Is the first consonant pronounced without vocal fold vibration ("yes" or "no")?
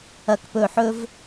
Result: yes